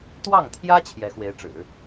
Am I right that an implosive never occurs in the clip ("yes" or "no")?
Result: yes